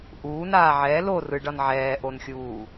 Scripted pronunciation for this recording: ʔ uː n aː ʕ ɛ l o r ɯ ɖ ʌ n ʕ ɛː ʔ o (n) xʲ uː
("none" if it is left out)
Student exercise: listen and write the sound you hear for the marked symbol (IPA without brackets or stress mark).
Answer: n